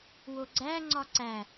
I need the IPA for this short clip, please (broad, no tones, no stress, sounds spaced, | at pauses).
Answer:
w o ɡ͡ǀ æ ŋ͡ǀ ɒ ǀ æ